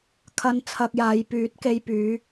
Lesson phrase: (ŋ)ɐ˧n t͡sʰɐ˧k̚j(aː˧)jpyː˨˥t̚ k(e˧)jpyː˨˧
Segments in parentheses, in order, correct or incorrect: incorrect: kʰ, incorrect: aː˨˧, correct

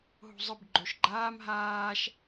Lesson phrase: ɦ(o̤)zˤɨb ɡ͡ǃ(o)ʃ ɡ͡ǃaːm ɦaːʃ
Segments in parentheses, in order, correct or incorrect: correct, correct

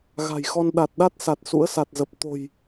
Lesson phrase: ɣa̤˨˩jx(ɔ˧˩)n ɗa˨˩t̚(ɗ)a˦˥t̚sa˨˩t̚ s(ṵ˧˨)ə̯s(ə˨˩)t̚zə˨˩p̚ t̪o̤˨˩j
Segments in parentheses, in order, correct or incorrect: incorrect: ɔ˧, correct, incorrect: ṵ˧˥, incorrect: a˨˩

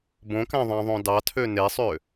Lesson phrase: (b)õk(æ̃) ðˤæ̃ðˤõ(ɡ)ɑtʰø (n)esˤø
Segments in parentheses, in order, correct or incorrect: correct, correct, incorrect: d, correct

